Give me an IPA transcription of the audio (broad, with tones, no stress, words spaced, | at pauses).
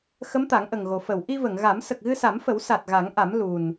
xə˧˥mt̪a˨˩˦ŋʔə˨˩ŋɣo˨˩ fə˨˩˨w ʔi˧və˨˩˨ŋɣa˨˩˦m sə˨˩k̚ɣɨ˧sa˨˩˦mfə˨˩˦w sa˨˩t̚ɣa˨˩˦ŋʔa˨˩˦m lu˨˩n